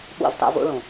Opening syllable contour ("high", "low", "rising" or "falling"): falling